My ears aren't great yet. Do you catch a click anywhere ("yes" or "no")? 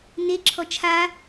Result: yes